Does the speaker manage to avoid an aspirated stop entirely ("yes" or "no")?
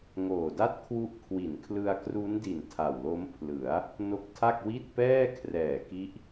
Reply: no